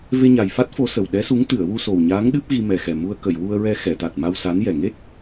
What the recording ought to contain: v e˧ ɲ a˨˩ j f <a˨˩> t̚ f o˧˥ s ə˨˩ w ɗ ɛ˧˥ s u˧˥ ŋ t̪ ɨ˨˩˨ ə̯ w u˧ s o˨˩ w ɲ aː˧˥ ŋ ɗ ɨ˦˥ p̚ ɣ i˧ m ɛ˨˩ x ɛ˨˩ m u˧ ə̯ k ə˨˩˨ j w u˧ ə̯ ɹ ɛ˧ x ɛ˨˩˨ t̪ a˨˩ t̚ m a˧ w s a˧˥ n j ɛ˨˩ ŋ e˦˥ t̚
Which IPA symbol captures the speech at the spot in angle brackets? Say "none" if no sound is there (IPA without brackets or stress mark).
a˦˥